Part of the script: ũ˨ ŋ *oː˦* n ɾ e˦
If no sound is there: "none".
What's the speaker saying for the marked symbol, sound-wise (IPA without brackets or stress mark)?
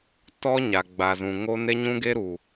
o˦